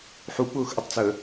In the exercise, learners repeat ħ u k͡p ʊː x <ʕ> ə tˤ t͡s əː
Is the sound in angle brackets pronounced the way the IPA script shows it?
no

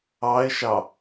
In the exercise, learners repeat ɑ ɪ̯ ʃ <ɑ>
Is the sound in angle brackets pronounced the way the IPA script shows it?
yes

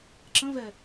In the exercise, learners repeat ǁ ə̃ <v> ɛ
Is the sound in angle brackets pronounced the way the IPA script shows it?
yes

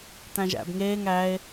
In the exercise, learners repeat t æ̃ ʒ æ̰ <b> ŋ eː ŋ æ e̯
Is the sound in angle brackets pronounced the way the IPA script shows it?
yes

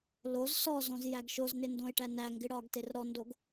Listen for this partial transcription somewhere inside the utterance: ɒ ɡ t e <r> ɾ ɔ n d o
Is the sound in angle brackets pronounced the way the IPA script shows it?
yes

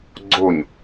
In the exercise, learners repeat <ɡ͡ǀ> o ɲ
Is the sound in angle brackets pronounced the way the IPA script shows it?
yes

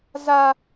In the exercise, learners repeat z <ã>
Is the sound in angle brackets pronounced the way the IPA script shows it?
no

